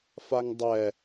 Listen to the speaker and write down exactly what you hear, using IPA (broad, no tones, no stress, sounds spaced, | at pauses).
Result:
f a ŋ dˤ ɛ